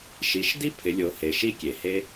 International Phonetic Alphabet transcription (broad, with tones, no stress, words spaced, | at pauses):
ʃi˩˧ʃ di˥pʰɪ˩˧lʲo˩˧he˩ ʃi˧kʲe˩ he˥